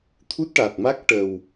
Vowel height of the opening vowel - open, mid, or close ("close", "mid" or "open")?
close